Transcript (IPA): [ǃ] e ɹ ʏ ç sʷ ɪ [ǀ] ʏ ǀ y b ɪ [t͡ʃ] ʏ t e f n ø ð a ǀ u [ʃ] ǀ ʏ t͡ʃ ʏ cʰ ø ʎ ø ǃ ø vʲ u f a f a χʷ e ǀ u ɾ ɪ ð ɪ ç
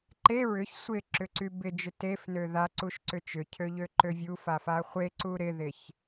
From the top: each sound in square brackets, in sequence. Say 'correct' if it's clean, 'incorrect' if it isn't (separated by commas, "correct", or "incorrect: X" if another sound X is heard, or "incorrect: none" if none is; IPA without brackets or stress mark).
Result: correct, incorrect: ǁ, incorrect: d͡ʒ, correct